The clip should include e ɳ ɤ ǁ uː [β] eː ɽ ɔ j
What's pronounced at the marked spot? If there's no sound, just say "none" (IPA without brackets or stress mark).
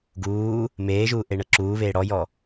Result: β